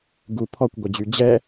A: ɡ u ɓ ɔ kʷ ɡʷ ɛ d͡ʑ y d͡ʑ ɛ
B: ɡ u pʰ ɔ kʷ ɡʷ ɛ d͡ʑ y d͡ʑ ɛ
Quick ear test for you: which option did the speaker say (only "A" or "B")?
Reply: B